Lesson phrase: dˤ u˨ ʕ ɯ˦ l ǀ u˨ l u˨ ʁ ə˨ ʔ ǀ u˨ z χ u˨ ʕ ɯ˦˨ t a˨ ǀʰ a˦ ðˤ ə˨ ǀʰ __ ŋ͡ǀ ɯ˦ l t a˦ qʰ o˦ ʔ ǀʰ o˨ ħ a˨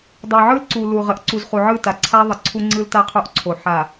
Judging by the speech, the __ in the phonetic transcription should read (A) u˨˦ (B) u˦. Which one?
B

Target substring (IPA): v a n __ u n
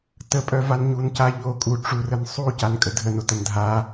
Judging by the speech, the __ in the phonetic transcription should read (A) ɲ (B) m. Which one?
A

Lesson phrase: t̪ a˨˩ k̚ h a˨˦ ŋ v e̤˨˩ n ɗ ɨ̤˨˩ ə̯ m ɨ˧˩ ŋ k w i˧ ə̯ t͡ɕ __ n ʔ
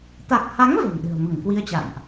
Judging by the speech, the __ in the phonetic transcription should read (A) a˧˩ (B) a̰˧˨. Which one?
B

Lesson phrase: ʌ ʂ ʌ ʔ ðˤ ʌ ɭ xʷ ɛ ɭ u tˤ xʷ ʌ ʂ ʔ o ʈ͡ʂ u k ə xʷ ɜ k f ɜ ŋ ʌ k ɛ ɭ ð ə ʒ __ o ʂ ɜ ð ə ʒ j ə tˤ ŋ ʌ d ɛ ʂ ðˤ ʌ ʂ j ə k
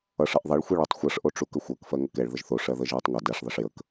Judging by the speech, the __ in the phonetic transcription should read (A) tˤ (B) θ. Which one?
B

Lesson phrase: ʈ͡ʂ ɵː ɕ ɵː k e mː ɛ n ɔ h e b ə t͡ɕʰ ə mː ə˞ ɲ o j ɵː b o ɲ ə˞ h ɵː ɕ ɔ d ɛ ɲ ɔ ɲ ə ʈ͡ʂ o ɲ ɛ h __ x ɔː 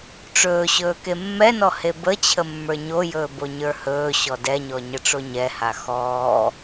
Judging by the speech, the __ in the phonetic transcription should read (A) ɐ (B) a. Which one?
B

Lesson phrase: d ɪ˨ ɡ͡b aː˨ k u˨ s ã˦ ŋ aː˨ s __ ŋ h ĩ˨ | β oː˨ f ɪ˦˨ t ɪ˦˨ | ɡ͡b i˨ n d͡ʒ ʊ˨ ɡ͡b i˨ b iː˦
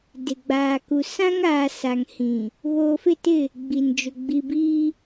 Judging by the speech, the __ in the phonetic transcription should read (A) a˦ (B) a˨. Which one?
B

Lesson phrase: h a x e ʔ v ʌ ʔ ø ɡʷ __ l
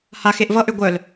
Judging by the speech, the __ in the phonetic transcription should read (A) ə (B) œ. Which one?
B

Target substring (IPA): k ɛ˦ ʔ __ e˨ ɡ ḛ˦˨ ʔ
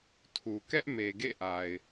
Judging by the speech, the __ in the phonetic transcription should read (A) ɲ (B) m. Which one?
B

